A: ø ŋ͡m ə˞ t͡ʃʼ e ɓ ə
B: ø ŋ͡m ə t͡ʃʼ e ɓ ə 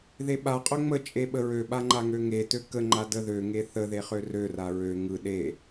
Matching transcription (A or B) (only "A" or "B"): B